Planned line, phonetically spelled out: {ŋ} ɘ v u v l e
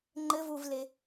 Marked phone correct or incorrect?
incorrect